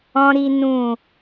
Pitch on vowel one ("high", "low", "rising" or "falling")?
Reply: high